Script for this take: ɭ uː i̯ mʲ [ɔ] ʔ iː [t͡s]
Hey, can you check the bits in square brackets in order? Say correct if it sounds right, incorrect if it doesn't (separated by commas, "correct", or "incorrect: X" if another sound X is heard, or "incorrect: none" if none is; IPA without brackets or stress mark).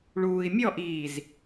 correct, incorrect: z